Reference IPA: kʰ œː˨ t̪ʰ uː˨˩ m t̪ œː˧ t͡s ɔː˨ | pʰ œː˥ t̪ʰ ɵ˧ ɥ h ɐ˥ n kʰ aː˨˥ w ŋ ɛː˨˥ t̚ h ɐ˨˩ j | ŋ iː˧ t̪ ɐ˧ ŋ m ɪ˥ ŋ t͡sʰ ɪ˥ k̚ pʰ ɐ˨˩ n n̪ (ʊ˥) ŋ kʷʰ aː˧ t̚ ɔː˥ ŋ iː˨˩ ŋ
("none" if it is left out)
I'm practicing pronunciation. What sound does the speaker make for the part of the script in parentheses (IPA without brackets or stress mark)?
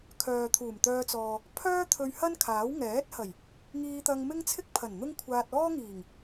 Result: ʊ˥